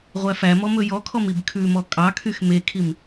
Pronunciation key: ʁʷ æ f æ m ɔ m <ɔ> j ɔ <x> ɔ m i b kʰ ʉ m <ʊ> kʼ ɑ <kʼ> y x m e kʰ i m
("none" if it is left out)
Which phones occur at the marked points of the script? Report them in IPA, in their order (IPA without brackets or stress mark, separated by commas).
ɵ, kʰ, ɔ, kʰ